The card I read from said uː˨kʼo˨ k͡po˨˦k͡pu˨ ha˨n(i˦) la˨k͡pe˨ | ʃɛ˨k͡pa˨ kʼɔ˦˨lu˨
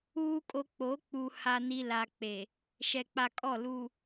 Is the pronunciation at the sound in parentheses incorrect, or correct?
incorrect